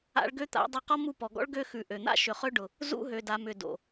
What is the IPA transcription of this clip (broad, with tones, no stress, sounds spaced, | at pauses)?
a̰˦ ɭ ɡ ø˦ t̪ a̰˨˦ dˤ ʉ˧ q ɔ˦ m u˧ p ɔ˨ ɡ ɔ̰˦ ɭ ɡ ø˧ x ʉ˨ ʔ ø˨ n̪ a̰˦ ʃ ʏ˨ χ ø˧ ɖ ʊ˨ | z ṵ˧ ɦ ø˨ d a˨ m ʏ˨ d o̰˨